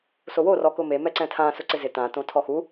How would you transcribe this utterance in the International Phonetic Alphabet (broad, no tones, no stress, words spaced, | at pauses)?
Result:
soworɔ kʊme mɛǀɛ̃tʰã sʊǀɪzɪ tãtõ tʰɔxu